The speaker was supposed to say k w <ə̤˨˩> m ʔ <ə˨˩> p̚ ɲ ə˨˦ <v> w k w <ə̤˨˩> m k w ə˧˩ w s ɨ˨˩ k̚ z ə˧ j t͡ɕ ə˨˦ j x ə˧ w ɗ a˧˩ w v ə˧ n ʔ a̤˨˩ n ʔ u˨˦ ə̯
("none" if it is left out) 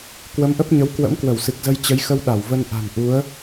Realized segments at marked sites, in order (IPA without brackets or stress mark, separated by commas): ə˨˦, ə˦˥, none, ə̰˧˥